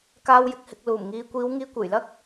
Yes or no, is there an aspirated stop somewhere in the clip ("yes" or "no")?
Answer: no